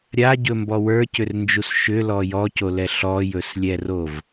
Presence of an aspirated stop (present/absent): absent